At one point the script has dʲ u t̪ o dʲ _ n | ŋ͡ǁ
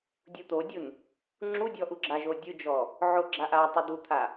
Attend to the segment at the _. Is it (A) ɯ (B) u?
B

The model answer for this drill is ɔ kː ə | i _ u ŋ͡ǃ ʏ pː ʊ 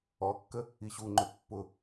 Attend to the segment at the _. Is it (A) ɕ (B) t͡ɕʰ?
A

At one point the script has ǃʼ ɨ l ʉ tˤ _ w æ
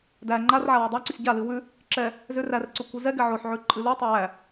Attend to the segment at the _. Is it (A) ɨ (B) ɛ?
B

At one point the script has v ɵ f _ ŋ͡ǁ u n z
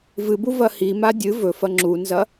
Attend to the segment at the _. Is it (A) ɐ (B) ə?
A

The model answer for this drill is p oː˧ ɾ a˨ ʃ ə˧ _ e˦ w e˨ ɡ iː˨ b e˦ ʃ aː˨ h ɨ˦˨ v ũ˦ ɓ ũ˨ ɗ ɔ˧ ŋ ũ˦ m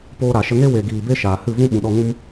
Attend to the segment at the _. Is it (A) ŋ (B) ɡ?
A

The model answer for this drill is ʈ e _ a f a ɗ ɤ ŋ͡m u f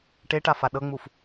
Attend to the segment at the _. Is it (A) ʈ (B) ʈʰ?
A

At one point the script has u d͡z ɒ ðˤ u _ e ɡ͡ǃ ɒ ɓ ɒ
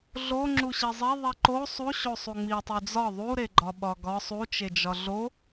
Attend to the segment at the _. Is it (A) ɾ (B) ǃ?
A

